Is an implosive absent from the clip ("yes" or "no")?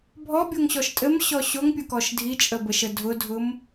yes